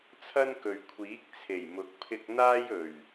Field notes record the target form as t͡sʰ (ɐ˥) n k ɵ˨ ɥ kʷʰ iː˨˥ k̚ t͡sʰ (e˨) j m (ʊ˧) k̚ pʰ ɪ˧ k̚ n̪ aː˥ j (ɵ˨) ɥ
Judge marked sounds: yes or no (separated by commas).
yes, no, no, no